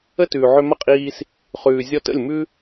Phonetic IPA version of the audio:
ə˦tʉː˨ʕʏ˧ mɐ˦qʼiː˧s | χʉː˨zʲɔ˧tə̰˦˨lʲ mʉ˦

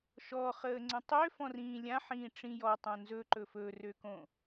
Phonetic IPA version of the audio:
ʃɔχəːŋ͡ǀə̃ tˤøfɔ̃rĩː lʲãħĩːʈ͡ʂĩ jɔtˤõ nzɵǃɵ fɵrøkõ

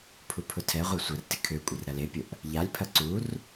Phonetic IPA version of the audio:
pʰupʰʊtʰɛʁʷa sʷɐrtɪ kʰøkʷʼɪr ɾɐlepʲʊʔ | ʎalʲpʰɐ ǀur

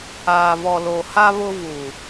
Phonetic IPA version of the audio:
aː˨vɔ˨lo˨ha˦ βʊ˦vu˨

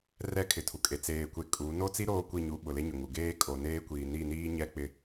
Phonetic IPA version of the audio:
rɛ˦kʰɪ˨tʰu˨ kʼe˨t͡seː˨kʷe˨ kʼu˨˦ no˦t͡si˦ ɾoː˦kʷi˦˨ɲu˨˦ ɓʊ˨le˦ɲʊ˨ŋu˨ ɡeː˦kʼo˨neː˦kʷiː˨ ni˦˨ niː˦ ɲɛ˦k͡pɪ˦

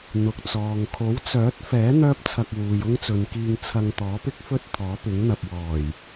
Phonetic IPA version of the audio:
n̪ʊ˨k̚t͡sɔː˨ŋ kʰo˨˥wt͡sœː˨˥t̚fɛː˨˥ n̪œː˥p̚t͡sʰɐ˧k̚ wuː˨jʊ˥ŋ t͡sɵ˨nkiː˧ŋ t͡sʰɐ˧ŋt̪ɔː˨˥pɪ˥k̚fɵ˥t̚ t̪ʰɔː˨˥pɪ˨˥ŋn̪ɐ˨p̚wɔː˨˩j

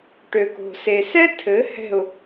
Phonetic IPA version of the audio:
ʈø˨ko̤˨se˨ sɛ˦ tʰɘ˨˦ hɛ̤˦˨ʊ̯

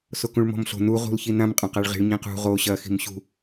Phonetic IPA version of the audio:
sokũɭmɔ̤mɬo̤ nu ʁṳlçinãm qʼɐ̃qaɭʁi̤ɭ ɲĩqṳ ʁo ɕɐ xi̤mɕṳ

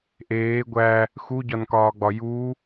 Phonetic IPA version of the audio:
ʔeː ɡʷæ | xuɟɒnkɒːɡ͡bɒ ju

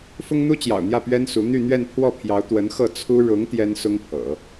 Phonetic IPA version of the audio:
fʊ˥ŋn̪u˥t͡ɕjɑ̰˨˩ʊ̯n̪jä˥˩ pɥɛ˥nsu˧˥ n̪y˥˧n̪ɥɛ˥˧npʰwɔ˥˩pʰjɑ˧˥ʊ̯ t̪wə˧˥nxɤ˥˩ t͡sʰu˥ ɻʊ˧˥ŋ t̪jɛ˥nsʊ˥ŋpʰɤ̰˨˩˦

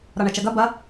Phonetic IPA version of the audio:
ɾɒɳɛt͡ʃɐɡɐ bɐ

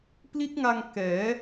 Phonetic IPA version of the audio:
pli˦˥t̚ŋa˧ŋ kɛː˩˦

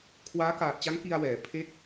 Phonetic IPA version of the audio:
kʰwaː˦˥kaː˨˩t̚t͡ɕa˦˥ŋ ki˧a̯wɛː˩˦ pʰe˥˩k̚

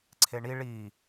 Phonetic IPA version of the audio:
ǀʰeɳi ɭi

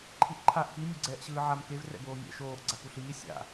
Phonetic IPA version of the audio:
ǃʰiʔǃʰaʔ ki mʲoɡ͡ǀɛːʔɕɯːʕam kev rɛ̰boːmʲɛ̰ ʃoːʔ ɡ͡ǀakuɬiː sʲa̰

